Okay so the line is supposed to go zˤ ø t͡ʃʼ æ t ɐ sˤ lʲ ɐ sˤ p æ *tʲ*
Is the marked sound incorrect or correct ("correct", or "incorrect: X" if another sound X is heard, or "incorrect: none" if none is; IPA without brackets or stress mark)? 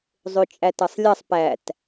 incorrect: t